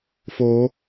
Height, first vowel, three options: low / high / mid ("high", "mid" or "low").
mid